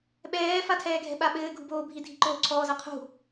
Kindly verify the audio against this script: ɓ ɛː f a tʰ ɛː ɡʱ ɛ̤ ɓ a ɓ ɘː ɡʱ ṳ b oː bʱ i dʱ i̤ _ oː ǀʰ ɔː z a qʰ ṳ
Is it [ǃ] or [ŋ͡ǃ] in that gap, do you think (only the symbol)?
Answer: ǃ